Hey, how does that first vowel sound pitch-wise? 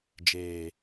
low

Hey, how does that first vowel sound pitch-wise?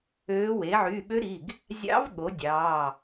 rising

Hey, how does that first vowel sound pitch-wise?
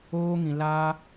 high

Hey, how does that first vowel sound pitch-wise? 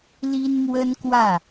high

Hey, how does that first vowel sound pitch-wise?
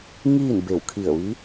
falling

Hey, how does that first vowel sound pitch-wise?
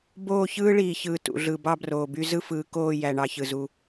falling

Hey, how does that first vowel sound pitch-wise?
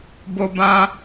high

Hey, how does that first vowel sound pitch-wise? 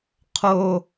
high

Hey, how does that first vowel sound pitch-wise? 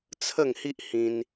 falling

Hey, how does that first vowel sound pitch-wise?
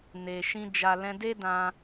low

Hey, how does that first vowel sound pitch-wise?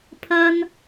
high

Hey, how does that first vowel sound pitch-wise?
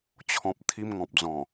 low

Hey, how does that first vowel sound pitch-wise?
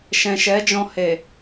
low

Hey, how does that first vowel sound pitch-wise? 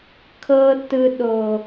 low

